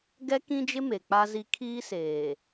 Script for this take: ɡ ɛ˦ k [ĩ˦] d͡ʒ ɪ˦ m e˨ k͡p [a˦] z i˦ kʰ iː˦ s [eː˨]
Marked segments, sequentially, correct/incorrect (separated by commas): correct, correct, correct